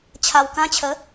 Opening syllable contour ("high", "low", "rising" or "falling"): low